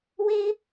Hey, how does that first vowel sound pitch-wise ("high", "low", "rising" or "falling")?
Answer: high